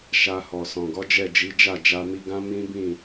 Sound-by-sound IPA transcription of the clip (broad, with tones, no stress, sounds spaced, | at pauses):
ʃ a˧ h ɔ˨ s ɔ̃˨ ɡ ɔ˨˦ d͡ʒ ɛ˦˨ d͡ʒ i˨˦ d͡ʒ a˦˨ d͡ʒ a˧ m i˧ ɡ ã˦ m ĩ˦ b ĩ˦˨